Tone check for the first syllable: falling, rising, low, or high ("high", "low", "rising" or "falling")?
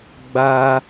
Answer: high